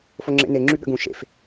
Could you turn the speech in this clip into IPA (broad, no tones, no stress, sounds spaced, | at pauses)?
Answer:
f o ŋ͡ǁ ḛ n e ŋ͡ǁ y ɠ ə̰ ɡ ũ ʃ ḛ f